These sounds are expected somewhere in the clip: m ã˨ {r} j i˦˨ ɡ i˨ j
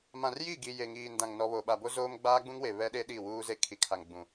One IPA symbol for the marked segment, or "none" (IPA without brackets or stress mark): r